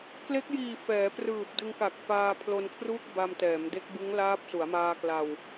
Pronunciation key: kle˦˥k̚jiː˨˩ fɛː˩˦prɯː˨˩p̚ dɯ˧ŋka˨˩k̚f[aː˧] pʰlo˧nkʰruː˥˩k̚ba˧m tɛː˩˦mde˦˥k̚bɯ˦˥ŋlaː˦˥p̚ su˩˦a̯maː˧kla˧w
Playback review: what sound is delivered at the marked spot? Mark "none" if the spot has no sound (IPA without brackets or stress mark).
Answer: aː˧